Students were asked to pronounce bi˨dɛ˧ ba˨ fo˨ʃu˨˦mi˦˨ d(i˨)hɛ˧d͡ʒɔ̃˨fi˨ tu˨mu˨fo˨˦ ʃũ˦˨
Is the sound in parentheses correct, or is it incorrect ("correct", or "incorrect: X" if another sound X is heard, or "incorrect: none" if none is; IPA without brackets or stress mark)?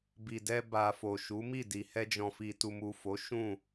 correct